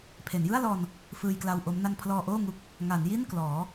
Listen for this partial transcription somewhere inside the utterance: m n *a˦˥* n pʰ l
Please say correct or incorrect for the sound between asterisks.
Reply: incorrect: a˧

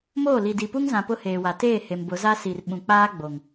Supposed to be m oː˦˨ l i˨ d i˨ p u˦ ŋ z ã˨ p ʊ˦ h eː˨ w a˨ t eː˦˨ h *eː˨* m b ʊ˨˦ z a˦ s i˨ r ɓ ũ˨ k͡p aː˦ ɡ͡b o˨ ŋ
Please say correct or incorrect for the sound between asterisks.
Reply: incorrect: e˨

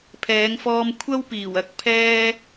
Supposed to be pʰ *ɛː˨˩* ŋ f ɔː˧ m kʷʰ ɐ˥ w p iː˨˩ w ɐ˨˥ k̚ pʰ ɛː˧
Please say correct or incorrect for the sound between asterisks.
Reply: incorrect: ɛː˨˧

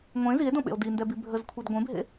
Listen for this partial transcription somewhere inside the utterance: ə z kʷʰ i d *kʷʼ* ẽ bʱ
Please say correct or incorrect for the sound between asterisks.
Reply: incorrect: ɡʷ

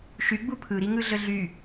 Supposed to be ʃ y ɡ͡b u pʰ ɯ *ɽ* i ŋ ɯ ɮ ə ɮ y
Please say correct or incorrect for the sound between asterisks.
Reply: incorrect: ɾ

